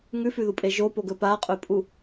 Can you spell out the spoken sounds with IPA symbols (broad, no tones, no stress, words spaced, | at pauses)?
ŋʉfʉðupʼe ʒopoɡɵ paqʼɵpʼu